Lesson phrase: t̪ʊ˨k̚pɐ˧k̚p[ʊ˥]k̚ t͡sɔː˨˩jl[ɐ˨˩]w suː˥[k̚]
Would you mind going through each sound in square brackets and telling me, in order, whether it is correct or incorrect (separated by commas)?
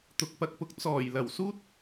incorrect, correct, incorrect